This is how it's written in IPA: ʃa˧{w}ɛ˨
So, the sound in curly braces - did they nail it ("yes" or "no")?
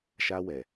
yes